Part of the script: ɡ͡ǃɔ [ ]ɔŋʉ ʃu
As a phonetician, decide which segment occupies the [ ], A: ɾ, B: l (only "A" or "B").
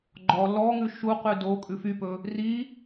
B